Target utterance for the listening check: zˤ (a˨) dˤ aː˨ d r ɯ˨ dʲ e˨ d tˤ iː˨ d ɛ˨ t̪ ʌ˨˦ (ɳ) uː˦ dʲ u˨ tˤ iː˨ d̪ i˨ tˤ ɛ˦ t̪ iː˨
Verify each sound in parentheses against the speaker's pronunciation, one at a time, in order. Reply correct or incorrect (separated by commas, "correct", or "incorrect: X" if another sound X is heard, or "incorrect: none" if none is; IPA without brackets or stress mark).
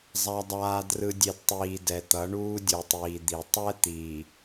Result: correct, correct